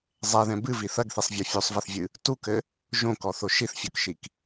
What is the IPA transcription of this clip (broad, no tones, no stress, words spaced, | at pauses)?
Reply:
zˤɛðɛ̃ bɨvi θɐɡθisˤvʲɔ fʲusˤvɛθvʲɨ | tukɘ | ʒõkɔθo ʃiθfʲokʃik